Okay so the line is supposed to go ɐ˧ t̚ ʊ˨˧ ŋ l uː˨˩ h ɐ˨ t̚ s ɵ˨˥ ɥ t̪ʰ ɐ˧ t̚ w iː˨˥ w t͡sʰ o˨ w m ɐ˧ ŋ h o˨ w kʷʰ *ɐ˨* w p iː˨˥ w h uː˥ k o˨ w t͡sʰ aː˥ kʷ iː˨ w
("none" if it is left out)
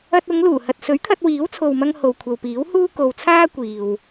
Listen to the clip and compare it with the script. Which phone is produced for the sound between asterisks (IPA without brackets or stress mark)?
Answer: ɐ˨